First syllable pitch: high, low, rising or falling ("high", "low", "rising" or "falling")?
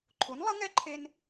rising